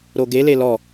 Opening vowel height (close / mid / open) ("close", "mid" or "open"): mid